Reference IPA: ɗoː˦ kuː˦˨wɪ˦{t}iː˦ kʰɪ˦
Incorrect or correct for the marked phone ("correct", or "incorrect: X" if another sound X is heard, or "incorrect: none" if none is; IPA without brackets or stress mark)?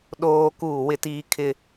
correct